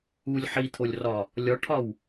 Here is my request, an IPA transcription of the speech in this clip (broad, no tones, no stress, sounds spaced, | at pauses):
u lʲ ħ i t̪ʰ o lʲ r ɒ | lʲ ɒ ʈʰ ɒ w